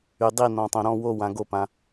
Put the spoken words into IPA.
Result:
y˩ dˤ i˧˩ n ɔ̃˩ tˤ õ˩ ɾ ɔ̃˧˩ w o˧˩ w ã˩ ɡ o˧˩ p ã˩

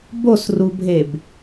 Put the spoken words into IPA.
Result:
b o s r u bʱ e b

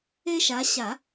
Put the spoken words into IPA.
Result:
e˦ ʃ a˨˦ ɕ a˨˩˦

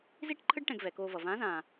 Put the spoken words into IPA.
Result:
z i˥ ʈ ǃʰ ɯ˥ ɖ ʈ ɛ̃˧ ɡ v ɛ˩˧ k oː˧ v ʌ˩ v ãː˧˥ z ãː˩

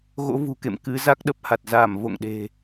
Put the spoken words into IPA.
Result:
ɣ o̰˧˥ v ṳ˨˩ k ḛ˧˨ m k ɨ˨˦ z a˦˥ k̚ ɗ ə˦˥ p̚ h a˨˩ t̚ z a˧˩ m v o̰˧˨ ŋ ɗ e̤˨˩

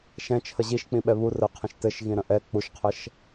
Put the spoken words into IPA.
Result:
ʃ ɛ̃ t͡ʃʰ ə ʑ i ʃ k͡p ĩ ɓ ɛ β u r ə qʰ ə̃ ʃ t ɘ ʃ ɣ ĩ ɾ ə̃ ʔ ɛ k͡p u ʃ qʰ ə ʃ

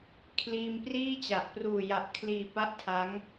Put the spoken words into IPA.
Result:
kʰ l iː˧ m p r iː˥˩ t͡ɕ a˨˩ ʔ p r uː˨˩ j a˨˩ ʔ kʰ l iː˨˩ p a˦˥ ʔ tʰ a˦˥ ŋ

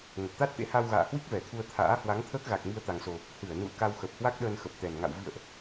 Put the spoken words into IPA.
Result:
ŋ ə˨˩ p̚ t̪ a˦˥ t̚ t̪ ḛ˧˥ h a˧ w ɣ a̰ː˧˨ h w i˦˥ k̚ v ɛ˧˩ t̪ʰ u˧ ə̯ t̪ʰ a̰ː˧˥ h w a˨˦ ŋ t̪ʰ əː˦˥ k̚ ɣ a˨˩ k̚ m i˧ ə̯ t̪ a˨˩ ŋ s o˨˩ | h ɨ˧˩ ə̯ n ṵ˧˨ ə̯ k a˧ w x ə˨˩ p̚ h w a˦˥ k̚ ɗ əː˧ n x ə˨˩ p̚ t̪ ɛ˨˩ n ŋ a̰˧˨ w v ḭ˧˨ ə̯ ʔ

